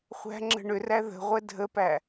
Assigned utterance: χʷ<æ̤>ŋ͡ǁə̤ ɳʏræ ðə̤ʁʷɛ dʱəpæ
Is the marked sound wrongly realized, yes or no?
no